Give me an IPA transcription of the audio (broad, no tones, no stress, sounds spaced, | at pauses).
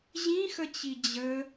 ʑ ĩ x ə t͡ɕ i d͡ʑ ə